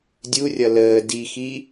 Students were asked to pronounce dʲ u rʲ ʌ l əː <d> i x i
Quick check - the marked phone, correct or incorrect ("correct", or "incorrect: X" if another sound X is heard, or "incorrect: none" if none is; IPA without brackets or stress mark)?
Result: correct